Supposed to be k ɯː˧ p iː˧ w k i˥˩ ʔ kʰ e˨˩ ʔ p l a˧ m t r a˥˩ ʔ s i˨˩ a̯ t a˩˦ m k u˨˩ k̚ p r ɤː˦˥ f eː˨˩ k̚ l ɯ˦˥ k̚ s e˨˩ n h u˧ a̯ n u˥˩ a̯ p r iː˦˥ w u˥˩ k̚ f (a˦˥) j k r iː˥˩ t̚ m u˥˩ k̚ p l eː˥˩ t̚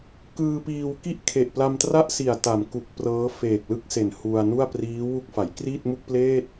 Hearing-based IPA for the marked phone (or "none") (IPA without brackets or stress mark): a˩˦